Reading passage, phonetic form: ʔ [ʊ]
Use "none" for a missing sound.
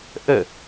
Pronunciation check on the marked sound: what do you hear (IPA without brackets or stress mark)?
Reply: ə